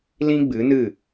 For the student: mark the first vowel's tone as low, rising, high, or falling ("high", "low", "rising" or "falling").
high